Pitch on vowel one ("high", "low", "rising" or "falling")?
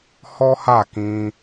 high